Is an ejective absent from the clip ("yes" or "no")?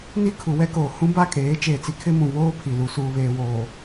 no